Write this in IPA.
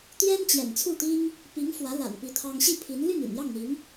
t̪ j ɛ˥ n t͡ɕ j ɛ̰˨˩ n t͡sʰ u˥˩ t̪ i˥ ŋ | p i˧˥ ŋ f w ä˧˥ l a̰˨˩ n p i˧˥ t̪ʰ ɑ˥ ŋ ɕ i˥˩ pʰ i˧˥ n l y˥˩ n y̰˨˩ n j ɑ˥˩ ŋ n̪ i˧˥ ŋ

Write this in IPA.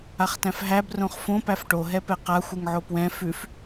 a χ t æ̃ f ɦ æ b r õ χ f õ p æ f ʈ o ɦ ɛ p ɛ q a xʷ ɯ ŋ ʕ o p w ɛ̃ f ʉ f

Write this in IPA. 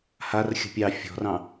h a r xʲ ə̤ pʲ ɑ fʲ ɔ̤ r ɑ̃

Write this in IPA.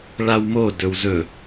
ɭ a w m o d ɵ w z ɵ

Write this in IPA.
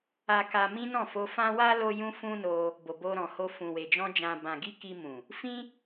a˧ k a˧ m ĩ˦ n ɔ̃˦˨ f o˧ f ã˦ w a˦ l o˦ j ũ˦ f ũ˦ n o˧ | b o˨ b o˧ ɾ ɔ̃˨ h o˧ f ũ˨ w e˨ d͡ʒ ɔ̃˧ d͡ʒ ã˨ b ã˨ ɡ i˧ k i˧ m ũ˨ | f ĩ˦

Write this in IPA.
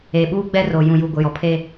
e˨ ɓ uː˦ ɡ͡b ɛ˦ r o˨ j ũ˨ j u˨ ɡʷ ɪ˨ j ɔ˨ pʰ eː˦

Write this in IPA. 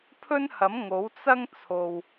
pʰ ɵ˥ n h ɐ˨˥ m ŋ o˨˥ w t͡s ɐ˥ ŋ t͡sʰ o˨ w

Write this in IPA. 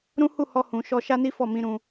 ɾ ũ˦ h u˦˨ h ɔ˧ h ũ˨ ʃ ɔ˧ ʃ a˦ n i˦ f ɔ˦˨ m ĩ˧ ɾ ũ˧

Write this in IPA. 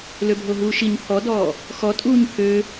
l ø bʱ o ɦ uː ʃ i ɲ pʰ ɔ d ɔː | x ɔ tʼ uː ɲ pʰ ø

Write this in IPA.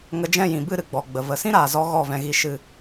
ŋ ə˧ d͡ʒ ɛ̃˦˨ j ĩ˨ b ɨ˦˨ ɾ ɨ˨ ɡ͡b ɔ˨ ɡ͡b ə˨ v ə˨ s ĩ˦ ɾ aː˨ z ɔ˧ ɣ ɔ˦˨ v ɛ̃˧ ɣ i˧ ʃ ɨ˧

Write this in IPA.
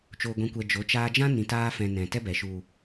t͡ʃ o˨ ɡʷ ĩ˨ kʷ ɛ˨ d͡ʒ o˨˦ t͡ʃ aː˧ d͡ʒ ã˦ n ĩ˨ t aː˧ f ɛ̃˨ n ɛ̃˨ t ɛ˦ b ɛ˨ ʃ u˨

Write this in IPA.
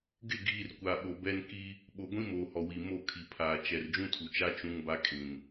ɡ ɪ˦˨ ɡ iː˨ r kʷ a˨ ɓ o˨ b ɛ˦ n k i˦ | ɓ o˨ ɡʷ ĩ˦ m oː˨ h ɔ˨ w i˨ m o˦˨ kʰ i˨ pʰ aː˨ t͡ʃ ɛ˨ r d͡ʒ ũ˦ tʰ u˨ t͡ʃ a˦ t͡ʃ ũ˦ ŋ b a˦ kʼ ĩ˨ n

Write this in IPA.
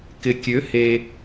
k ɪ˨ kʲ ø˨˦ h e˧

